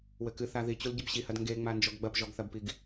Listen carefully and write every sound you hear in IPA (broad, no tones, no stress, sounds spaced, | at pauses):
w ɘ k ɨ θ a ð i t͡ɕ u l ɟ ɘ b ɕ i h ɐ d ŋ ɡ e ŋ͡m a n d͡ʒ ɔ ɡ ɡ͡b ɐ p ʒ ɔ ɡ θ ɐ b p i ɡ